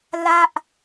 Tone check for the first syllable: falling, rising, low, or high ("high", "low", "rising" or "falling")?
falling